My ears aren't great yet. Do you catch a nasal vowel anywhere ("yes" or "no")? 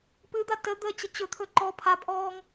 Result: no